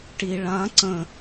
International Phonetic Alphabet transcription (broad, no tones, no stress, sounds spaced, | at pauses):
ʈ i ɭ ã ǀ ə̃